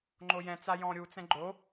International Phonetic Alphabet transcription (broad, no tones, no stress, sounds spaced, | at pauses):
ŋ͡ǃ o j ɛ̃ t͡s a j ɔ̃ ɾʲ u t͡s ɛ̃ ɡ͡ǃ o